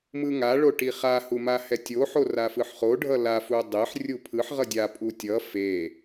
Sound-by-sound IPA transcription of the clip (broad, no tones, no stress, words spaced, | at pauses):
mɯŋa ɭoʈiχa humahɛtʲo ħorafɯħχo ɖʱʌla fudˤeħ rʲupʰɯħ ʁʌdʲa pʼutʲʌ fe